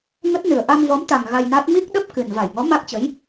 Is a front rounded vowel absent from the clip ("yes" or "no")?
yes